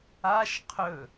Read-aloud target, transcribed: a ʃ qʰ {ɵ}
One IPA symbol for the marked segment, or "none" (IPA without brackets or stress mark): ɵ